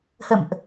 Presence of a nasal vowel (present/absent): absent